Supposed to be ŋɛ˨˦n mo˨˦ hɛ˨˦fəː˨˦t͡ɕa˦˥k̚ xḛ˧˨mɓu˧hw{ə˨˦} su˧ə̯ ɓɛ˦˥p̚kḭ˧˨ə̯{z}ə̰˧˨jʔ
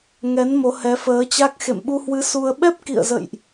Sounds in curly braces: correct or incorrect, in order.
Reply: incorrect: ɨ˨˦, correct

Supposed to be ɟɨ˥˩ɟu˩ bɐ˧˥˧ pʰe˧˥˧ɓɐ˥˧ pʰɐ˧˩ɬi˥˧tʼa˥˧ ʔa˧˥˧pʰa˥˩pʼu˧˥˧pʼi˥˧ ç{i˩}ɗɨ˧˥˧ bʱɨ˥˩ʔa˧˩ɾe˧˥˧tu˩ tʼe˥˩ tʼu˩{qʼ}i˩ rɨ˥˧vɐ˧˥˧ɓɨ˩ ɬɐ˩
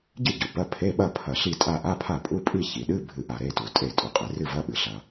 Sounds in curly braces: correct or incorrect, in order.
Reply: correct, correct

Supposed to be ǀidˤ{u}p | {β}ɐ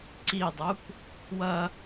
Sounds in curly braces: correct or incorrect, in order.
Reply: correct, incorrect: w

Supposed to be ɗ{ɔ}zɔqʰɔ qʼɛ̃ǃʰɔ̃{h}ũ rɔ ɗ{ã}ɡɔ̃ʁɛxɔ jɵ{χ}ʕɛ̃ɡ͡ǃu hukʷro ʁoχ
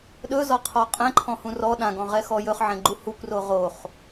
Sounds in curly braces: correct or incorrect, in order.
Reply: incorrect: ɵ, correct, correct, correct

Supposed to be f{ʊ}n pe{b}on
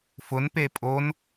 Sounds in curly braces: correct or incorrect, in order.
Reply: correct, incorrect: pʼ

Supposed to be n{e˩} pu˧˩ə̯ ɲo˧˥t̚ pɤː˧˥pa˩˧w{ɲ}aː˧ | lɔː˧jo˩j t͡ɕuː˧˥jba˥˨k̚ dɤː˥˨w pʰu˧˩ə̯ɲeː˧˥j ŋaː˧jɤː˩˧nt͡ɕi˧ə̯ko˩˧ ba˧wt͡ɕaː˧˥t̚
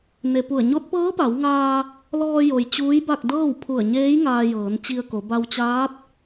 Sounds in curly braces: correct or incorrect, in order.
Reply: correct, incorrect: ŋ

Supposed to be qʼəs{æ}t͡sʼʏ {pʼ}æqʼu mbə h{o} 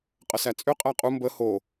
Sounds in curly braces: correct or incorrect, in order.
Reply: correct, incorrect: qʼ, correct

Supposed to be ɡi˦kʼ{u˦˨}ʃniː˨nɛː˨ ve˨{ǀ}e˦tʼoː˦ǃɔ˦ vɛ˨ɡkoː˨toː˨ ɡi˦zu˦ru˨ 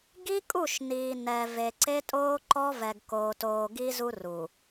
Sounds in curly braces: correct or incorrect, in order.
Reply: correct, correct

